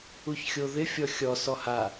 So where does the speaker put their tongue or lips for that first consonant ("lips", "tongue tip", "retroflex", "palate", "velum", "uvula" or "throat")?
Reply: palate